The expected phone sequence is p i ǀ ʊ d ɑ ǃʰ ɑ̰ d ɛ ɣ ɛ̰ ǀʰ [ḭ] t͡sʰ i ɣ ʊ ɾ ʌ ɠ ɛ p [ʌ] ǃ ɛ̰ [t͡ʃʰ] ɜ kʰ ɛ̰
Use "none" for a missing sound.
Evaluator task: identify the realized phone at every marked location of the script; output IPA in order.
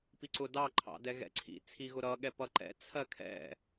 ḭ, ʌ, t͡sʰ

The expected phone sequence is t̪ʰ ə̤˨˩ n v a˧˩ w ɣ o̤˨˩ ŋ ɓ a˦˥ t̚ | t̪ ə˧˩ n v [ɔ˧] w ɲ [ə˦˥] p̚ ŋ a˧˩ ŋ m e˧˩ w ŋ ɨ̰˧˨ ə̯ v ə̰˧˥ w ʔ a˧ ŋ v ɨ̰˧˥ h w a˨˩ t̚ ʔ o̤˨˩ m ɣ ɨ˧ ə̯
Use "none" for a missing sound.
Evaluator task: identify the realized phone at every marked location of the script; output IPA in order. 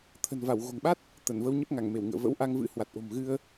ə˧, ə˦˥

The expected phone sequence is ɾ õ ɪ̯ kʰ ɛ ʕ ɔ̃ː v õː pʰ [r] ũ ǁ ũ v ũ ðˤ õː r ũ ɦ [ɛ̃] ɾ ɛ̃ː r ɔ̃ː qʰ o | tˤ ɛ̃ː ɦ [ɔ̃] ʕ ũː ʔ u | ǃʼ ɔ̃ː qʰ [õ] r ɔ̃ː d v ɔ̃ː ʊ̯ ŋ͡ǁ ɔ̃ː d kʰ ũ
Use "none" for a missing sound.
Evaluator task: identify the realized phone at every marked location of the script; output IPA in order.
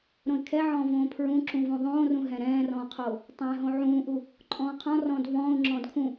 ɹ, ɛ̃, õ, ɔ̃

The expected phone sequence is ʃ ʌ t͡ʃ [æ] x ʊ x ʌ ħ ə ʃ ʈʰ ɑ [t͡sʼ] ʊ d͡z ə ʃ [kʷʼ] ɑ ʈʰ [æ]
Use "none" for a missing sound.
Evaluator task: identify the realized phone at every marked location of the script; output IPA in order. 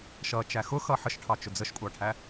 æ, t͡ʃ, kʷʼ, æ

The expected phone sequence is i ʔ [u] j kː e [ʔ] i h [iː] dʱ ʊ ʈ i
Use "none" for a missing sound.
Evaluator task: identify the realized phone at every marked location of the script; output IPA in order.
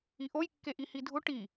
o, ʔ, i

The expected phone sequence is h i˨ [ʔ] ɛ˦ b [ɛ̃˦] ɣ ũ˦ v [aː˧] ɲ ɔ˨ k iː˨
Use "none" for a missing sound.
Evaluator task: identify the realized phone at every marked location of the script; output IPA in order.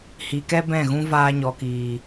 k, ɛ̃˦˨, aː˧

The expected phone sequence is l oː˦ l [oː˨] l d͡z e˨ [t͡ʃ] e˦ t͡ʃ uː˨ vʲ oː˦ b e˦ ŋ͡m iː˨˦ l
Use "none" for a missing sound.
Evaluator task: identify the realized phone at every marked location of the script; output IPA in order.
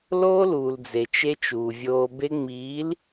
uː˨, t͡ʃ

